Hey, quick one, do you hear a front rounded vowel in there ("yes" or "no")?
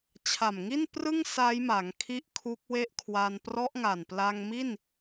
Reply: no